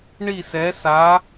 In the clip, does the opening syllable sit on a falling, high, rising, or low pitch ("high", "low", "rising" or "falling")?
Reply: falling